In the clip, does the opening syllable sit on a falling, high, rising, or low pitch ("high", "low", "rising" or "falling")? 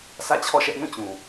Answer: falling